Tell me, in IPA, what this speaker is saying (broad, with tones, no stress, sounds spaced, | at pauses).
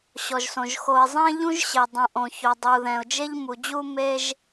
ɕ ɔ˩ ʒ s õ˩ ʒ x o˨ ɪ̯ zˤ ɛ̃˥ ʎ ũ˥ ʒ ɕ e˩ dˤ ũ˩ ʔ õ˩ ç o˩ dˤ u˩ ð ɛ̃˩ ʊ̯ d͡ʒ e˦ ʎ m u˩ d͡ʑ u˥ m e˥ ʒ